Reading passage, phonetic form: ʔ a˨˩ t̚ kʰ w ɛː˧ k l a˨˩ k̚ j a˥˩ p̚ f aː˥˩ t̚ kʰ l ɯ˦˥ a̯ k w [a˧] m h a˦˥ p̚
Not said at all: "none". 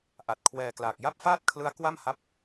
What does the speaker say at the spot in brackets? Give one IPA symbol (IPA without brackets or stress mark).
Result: a˥˩